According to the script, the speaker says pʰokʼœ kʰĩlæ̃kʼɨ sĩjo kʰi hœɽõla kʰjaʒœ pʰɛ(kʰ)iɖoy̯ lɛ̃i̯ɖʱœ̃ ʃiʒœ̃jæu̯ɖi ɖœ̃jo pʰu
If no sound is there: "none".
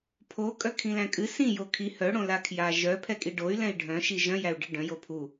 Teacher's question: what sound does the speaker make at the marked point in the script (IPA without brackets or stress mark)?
kʼ